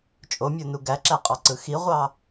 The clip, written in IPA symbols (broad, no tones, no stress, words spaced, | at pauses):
t͡ʃʼomʲonu ɡæǁæqʼɑǀɯ xiʁʷɑ